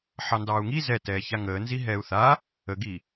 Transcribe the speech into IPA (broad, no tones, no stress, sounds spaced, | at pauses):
ħ ɑ n d ɑː u̯ ŋ i z ɛ t ɛː ç a ŋ əː n z i ɦ ɛː u̯ θ aː | ə ɡ iː